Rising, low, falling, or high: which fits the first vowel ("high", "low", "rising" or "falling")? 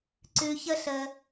low